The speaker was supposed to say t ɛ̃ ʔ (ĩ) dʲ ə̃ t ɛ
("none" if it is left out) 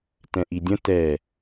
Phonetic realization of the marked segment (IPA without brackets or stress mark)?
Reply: i